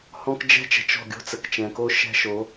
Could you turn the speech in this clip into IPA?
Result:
h ɔ̃˦ k d͡ʒ ɛ̤˦ t͡ʃ ə̤˨ t͡ʃ ɔ̤˦˨ ɡʲ o̤˦ t͡s ə˨ k t͡ʃ ɛ̃˨ k o˦ ʃ ɛ̤˦ ʃ o˨˦

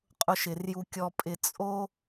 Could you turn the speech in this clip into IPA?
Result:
qʼ ʊ˨ ʃ ɪ˩ r j u˨ kʲ ɔ˨ pʼ ɪ˨ t͡sʼ o˦

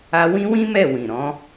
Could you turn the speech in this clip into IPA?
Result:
a˦ w ĩ˦ w ĩ˦ m ɛ˦˨ w ĩ˨ ɾ ɔ̃˨˦

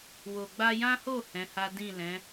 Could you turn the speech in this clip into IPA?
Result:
w o˨ ɡ͡b a˧ j ã˦ h o˦˨ h ɛ̃˨˦ h a˦ d ĩ˦˨ l ɛ̃˨˦

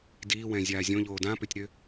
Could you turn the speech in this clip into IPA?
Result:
d iː w ɛ̃ zʲ aː zʲ õ ʎ oː d ã p ʏ tʲ ɾ ʏ

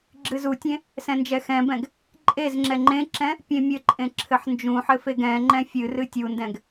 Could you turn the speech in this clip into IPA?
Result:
ɡ͡ǁ ɨ z u tʲ ẽ | s ɛ̃ n d͡ʒ ɛ x ɛ̃ b ɛ̃ ɡ | ǃʼ e z ŋ͡ǁ ɛ ŋ͡ǃ ẽ ǁ ɛ̃ | pʲ ẽ mʲ ɘ ǃʼ ẽ ǁʰ ɘ ħ n d͡ʒ ũ ħ ɘ f e ɡ ɛ̃ ŋ͡ǃ ɛ̃ fʲ ɨ r ɨ tʲ u n d ɛ̃ ɡ

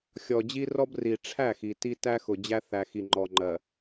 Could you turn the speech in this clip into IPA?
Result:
xʲ ɔ˨ d͡ʑ i˦ r ɔ˦ b r i˨ ʈ͡ʂʰ æ˦˨ x i˨ t i˦ t æ˦ x ʊ˨ d͡ʑ æ˦ θ æ˨ x i˨ ŋ͡ǃ ɔ˨ ŋ͡ǃ ɜ˨

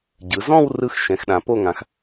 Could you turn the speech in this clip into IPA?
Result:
ɟ ɯ˩˧ z ɔ̃˥˧ w r ɯ˥˧ x ʃ ɛ̃˩˧ x ɗ ã˩˧ p o˥˧ ŋ ã˩˥ x

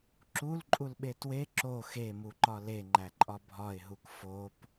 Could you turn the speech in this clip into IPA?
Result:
ǁ u l ǃʼ u l ɓ e t w e ǁ o x e m u ǃ ɒ l e ŋ͡ǃ æ ǃʼ ɒ bʱ ɒ ɪ̯ ɦ u k f o p

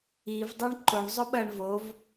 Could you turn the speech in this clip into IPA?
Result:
i v dˤ u ɳ ǃ o ɳ zˤ ɵ ɓ ɐ ɳ v o v

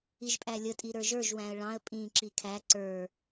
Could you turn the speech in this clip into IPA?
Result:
i ʒ pʼ æ lʲ ə tʼ i ɾ ə˞ ʒ ə˞ ʒ w æ̃ ə̯ ɭ ɑ̃ ə̯ pʼ ĩ ǁ i kʰ æ ǀ ə˞

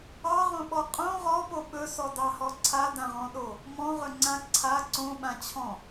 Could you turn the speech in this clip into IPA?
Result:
ɑ ʁ õ ɓ ɔ qʼ õ ʁ ɔ p o ɓ ɵ s ɔ d ɑ h ɔ ǀʰ a d ã ʁ ɔ̃ ɗ o | m ɔ̃ ʁ ɵ ŋ͡ǀ ã ǀʰ a ǀ õ ɓ ã t͡ɕʰ ɔ̃

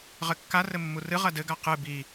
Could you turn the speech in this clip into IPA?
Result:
ʁ ɘ kː a r ɘ mː u r ɨ ʁ ɐ d ɘ ɡ a q ɨ b i

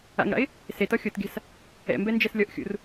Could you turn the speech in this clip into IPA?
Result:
a̰ ŋ ɽ a̰ ɪ̯ | s e t ɔ xʲ o t ɡʲ a̤ s | ɛ̰ m b ɛ n d͡ʒ ɛ s lʲ ɔ ʔ xʲ ṵ r

